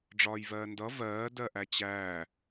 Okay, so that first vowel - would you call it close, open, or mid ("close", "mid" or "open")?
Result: open